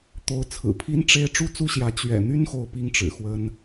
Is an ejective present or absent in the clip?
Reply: absent